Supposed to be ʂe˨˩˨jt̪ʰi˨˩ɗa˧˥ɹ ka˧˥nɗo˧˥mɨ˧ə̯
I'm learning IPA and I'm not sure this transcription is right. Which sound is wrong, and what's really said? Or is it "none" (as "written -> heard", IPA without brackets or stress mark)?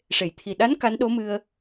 ɹ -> n